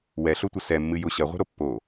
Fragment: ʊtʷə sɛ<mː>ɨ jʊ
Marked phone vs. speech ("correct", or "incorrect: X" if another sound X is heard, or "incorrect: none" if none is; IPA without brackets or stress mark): correct